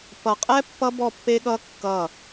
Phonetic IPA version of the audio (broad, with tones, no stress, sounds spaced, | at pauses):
p ʌ˨ qʼ ɛ˦ pː ʌ˦ b ɔ˦˨ pː e˦ ɠ ʌ˦ kː ʌ˦˨